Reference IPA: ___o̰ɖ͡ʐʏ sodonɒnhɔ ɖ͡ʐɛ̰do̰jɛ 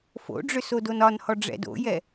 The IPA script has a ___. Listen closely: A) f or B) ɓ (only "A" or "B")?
A